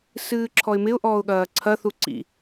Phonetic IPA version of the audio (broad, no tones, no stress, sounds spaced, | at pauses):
s ɨː ǁʰ ɔ ɪ̯ m ɪ ʊ̯ ʔ ɔː ʊ̯ ɠ ɐː ǀʰ ɐ θ u ǀ ḭ